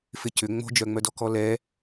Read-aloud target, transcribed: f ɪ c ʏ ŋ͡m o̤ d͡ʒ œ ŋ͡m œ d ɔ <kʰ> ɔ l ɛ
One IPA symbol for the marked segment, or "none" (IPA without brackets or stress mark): k